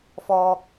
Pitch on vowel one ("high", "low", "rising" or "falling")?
low